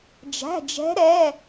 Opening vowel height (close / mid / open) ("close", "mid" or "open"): open